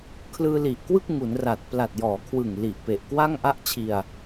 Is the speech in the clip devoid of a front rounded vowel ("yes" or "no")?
yes